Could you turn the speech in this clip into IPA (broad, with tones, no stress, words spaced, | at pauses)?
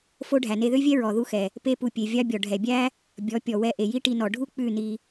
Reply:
fo˦ ɖʱæ˨ne˧ðø˦vʲɛ˦ ɹɔ˨ ðu˧xɛ˨ | pe˦pu˧ pʲe˨vʲɑ˦bʲɔ˨ ɖʱɛ˨bʲæ˦ | bʲɔ˨˦ pʲɔ˨ wɛ˧ʔe˨ ji˦ʈi˧nɔ˨ ɖʱu˦ k͡pʉ˦˨ni˧